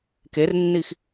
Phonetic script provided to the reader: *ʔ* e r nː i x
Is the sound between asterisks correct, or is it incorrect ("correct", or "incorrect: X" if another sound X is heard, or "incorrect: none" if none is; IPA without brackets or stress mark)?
incorrect: k